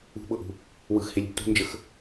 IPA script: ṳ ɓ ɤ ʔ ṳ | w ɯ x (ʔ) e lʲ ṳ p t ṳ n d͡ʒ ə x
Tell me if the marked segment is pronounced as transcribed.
no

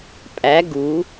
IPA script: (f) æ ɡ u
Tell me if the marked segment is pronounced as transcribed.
no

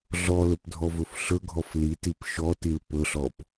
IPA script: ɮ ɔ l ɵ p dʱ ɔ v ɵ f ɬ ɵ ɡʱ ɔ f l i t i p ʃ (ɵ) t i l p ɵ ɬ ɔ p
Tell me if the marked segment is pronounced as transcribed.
no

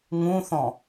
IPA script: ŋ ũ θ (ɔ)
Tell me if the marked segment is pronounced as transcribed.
no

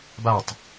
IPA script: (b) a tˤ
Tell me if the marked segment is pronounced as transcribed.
yes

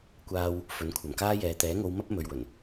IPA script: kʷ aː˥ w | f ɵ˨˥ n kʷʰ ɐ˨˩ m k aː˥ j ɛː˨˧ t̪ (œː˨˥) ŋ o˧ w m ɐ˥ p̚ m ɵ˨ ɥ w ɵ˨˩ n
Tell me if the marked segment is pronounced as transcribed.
no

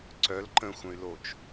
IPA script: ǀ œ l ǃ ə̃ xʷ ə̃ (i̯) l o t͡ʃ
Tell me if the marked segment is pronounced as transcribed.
no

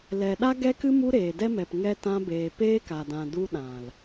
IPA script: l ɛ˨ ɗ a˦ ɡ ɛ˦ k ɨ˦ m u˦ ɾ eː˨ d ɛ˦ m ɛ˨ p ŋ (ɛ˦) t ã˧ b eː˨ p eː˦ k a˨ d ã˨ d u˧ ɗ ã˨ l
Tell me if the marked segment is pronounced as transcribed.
yes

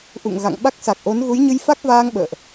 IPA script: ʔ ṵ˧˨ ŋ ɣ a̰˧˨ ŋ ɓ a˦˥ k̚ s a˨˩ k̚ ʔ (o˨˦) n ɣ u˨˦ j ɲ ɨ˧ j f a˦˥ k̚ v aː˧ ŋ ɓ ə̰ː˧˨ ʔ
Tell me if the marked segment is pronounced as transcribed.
yes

